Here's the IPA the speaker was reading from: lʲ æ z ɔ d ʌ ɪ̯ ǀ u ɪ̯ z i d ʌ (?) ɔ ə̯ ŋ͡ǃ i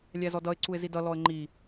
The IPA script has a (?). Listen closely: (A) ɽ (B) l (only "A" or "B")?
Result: B